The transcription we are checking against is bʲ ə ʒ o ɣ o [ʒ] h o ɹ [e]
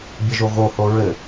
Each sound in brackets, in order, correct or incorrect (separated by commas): incorrect, incorrect